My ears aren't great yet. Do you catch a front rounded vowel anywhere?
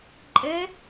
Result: no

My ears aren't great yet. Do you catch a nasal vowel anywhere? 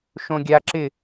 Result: yes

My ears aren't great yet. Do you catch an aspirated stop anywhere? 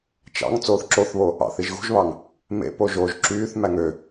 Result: no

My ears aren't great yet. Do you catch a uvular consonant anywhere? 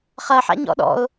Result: yes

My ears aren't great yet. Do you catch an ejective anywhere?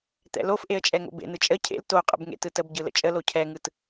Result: yes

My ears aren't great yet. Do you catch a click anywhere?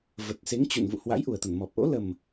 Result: no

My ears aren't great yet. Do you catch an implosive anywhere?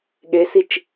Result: yes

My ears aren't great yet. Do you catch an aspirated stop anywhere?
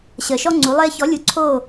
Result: yes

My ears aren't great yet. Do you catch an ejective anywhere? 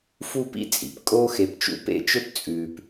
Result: yes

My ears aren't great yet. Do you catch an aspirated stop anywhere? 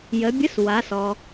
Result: no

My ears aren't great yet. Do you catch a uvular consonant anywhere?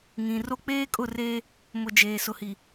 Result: no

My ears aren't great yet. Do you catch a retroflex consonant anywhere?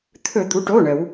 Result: yes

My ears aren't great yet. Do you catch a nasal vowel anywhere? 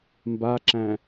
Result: yes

